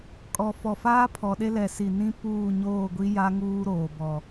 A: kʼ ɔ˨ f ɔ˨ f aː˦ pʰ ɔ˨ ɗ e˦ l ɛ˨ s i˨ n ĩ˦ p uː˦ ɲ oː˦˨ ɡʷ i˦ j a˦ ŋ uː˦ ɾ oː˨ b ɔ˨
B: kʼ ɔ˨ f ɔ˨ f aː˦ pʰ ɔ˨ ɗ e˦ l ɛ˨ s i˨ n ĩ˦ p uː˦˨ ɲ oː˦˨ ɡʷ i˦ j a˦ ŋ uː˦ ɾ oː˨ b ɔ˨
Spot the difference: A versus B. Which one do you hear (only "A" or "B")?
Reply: B